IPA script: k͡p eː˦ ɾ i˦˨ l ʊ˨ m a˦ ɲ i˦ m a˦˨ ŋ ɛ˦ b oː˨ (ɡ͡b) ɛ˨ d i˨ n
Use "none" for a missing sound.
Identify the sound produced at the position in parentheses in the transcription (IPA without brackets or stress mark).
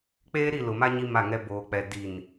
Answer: k͡p